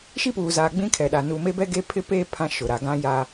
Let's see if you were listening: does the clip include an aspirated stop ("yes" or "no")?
yes